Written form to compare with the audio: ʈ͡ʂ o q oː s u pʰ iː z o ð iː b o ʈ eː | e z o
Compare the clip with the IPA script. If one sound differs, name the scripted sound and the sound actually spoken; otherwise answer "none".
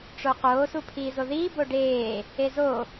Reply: ʈ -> ɖ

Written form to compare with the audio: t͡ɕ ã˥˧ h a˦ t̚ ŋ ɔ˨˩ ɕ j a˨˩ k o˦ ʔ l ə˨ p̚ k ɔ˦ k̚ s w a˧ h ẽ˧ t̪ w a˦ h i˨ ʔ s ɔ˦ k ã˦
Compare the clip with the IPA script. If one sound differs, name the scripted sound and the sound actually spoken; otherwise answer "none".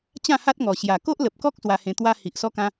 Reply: none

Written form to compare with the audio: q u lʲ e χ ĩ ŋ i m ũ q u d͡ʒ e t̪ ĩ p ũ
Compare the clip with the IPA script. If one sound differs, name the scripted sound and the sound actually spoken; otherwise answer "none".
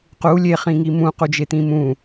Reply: p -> m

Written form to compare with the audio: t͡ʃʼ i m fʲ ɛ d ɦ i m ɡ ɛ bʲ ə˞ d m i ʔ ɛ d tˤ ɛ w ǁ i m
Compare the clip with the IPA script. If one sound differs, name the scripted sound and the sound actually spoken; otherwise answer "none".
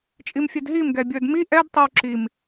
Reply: none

